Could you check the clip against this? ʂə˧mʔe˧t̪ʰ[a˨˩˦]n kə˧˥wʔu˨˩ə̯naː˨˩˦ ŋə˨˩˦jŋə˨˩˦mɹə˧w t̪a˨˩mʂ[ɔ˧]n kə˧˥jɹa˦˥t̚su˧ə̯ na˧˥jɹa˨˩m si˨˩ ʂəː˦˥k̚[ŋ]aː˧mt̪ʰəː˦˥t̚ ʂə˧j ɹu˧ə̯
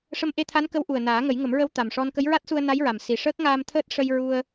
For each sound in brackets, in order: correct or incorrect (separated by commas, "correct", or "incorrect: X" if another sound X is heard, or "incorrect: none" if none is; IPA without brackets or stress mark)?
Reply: incorrect: a˧˥, correct, correct